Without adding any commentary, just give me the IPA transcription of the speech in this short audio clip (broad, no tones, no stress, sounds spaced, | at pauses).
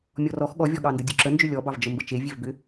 mʲ ɔ r ɔ x ɠ ɔ vʲ ɔ ɠ ɑ n d ə dʲ u ǁ ə n d͡ʒ ʏ lʲ ɔ b ɑ v d͡ʒ ə m b ə t͡ʃ e vʲ e v b ʏ